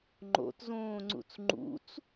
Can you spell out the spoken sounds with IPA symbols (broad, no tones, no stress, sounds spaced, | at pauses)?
ŋ͡ǃ o̰ t z õː ŋ͡ǀ ṵ t͡s ŋ͡ǃ ṵ t͡s